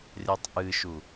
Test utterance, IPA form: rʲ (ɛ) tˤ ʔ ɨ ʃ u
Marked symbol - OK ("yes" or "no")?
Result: yes